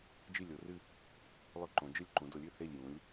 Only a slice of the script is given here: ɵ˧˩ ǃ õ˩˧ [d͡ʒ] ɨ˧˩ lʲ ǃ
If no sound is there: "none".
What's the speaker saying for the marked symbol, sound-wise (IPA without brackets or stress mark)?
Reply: d͡ʒ